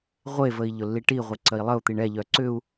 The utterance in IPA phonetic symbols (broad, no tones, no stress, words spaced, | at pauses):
ʁʷevəi̯ ʎʊlːiʈiʁʷe ǀəi̯lˠəu̯t̪iɳ ɛʎœ ǀʏu̯